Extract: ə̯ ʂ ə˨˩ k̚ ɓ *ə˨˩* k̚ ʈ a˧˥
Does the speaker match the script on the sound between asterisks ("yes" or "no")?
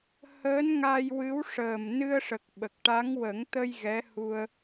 yes